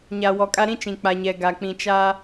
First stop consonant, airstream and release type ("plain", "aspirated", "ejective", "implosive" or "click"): ejective